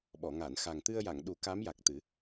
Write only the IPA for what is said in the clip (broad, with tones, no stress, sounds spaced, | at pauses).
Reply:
ɓ ɔ˨˩˨ ŋ a˨˩˨ n x a˨˩ ŋ t̪ ɨ˧ ə̯ j a˨˩˨ ŋ ɗ u˨˩˦ k a˧˥ m j a˨˩ k̚ t̪ ɨ˨˩˦